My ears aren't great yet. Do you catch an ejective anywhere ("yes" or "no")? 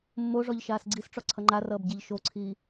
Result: no